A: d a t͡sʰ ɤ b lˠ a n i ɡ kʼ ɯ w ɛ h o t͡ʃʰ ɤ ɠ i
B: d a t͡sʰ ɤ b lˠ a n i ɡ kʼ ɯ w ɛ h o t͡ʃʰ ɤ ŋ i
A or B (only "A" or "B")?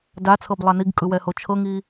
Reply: B